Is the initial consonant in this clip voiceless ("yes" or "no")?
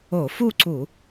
yes